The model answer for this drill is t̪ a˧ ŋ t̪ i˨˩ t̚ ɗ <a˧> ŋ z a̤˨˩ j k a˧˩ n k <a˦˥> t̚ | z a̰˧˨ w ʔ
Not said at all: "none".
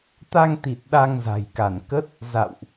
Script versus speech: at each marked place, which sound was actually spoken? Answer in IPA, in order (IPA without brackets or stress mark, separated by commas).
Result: a˧, ə˦˥